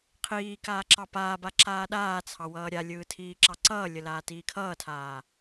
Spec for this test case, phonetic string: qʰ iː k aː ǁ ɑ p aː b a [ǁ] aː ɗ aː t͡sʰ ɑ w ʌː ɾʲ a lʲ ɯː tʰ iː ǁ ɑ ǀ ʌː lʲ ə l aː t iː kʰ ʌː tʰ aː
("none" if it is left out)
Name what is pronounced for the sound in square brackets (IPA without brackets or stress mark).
ǁ